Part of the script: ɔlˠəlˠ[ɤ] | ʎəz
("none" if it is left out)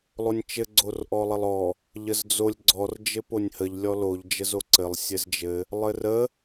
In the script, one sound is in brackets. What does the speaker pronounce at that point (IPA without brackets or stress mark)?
ɔ